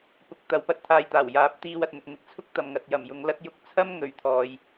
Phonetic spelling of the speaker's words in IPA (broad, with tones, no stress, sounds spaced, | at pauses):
p ʊ˨˥ k̚ t̪ ɐ˨˧ w p ɐ˥ t̚ t̪ʰ aː˧ j t̪ aː˨˩ w j aː˨˥ p̚ t̪ iː˧ w ɐ˨ t̚ n̪ ʊ˨ k̚ n̪ ɪ˨ k̚ t͡sʰ ʊ˥ k̚ t̪ ɐ˨ m ŋ ɐ˨ t̚ j ɐ˨˩ m j ʊ˨˧ ŋ l ɐ˥ t̚ j ʊ˧ k̚ t͡sʰ ɐ˥ m ŋ ɵ˨ ɥ t̪ʰ ɔː˨ j